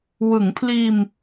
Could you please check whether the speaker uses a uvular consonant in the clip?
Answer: no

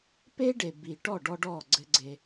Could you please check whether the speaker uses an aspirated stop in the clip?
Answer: no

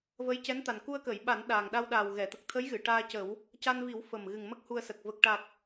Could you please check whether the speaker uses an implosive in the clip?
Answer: yes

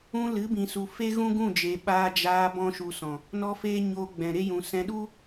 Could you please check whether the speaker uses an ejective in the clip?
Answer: no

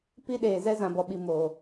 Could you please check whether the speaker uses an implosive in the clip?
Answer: yes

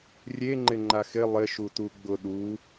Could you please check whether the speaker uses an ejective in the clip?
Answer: no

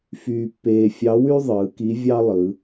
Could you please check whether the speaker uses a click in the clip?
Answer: no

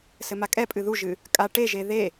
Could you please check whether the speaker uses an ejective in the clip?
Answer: yes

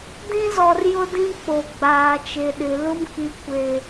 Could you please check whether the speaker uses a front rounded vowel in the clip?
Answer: no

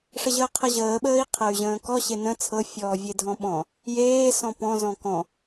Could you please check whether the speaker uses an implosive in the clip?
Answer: yes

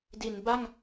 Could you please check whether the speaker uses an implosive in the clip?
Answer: no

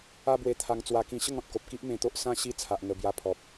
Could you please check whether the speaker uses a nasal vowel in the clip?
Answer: yes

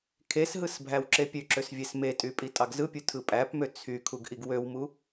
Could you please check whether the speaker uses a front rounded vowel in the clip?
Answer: yes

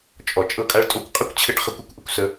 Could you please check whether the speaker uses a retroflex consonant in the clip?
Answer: yes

